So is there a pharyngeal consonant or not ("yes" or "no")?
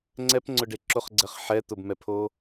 yes